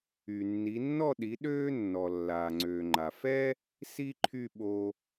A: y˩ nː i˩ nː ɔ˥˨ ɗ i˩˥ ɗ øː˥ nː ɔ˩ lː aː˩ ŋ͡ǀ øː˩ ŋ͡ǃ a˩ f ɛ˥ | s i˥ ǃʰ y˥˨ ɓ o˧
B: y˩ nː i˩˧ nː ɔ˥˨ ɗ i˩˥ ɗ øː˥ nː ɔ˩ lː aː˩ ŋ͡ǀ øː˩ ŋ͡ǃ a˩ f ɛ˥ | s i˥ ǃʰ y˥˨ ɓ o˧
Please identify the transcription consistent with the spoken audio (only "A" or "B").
B